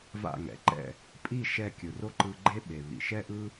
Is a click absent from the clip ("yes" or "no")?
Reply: no